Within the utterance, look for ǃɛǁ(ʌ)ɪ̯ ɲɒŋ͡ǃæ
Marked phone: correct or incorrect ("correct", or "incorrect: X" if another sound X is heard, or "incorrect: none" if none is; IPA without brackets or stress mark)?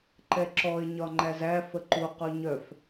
incorrect: ɔ